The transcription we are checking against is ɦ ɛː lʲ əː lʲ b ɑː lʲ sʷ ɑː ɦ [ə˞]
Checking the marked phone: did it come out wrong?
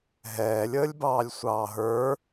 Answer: no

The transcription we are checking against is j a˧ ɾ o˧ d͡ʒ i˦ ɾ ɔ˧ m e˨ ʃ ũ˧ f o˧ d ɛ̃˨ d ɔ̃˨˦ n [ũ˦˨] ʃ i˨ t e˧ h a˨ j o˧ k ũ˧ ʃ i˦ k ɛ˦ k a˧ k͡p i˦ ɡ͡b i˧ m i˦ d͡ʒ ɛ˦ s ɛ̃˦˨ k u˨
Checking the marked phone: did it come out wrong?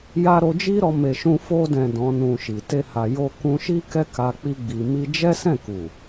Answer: yes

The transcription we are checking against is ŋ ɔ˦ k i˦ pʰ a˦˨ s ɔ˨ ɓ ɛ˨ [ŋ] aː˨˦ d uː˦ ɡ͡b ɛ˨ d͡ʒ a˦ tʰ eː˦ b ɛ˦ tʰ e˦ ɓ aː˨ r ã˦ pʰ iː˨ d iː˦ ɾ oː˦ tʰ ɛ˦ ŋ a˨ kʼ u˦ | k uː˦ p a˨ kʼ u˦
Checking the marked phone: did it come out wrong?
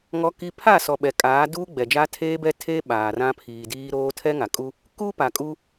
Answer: yes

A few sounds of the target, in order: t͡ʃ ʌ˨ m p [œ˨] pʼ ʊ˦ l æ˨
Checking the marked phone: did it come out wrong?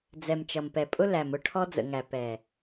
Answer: yes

